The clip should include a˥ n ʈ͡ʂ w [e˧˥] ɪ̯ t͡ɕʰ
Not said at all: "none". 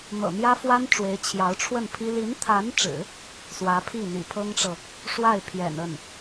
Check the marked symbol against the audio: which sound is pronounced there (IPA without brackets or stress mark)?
e˧˥